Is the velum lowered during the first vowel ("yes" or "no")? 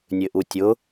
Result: no